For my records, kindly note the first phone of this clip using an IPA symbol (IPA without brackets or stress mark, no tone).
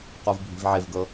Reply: q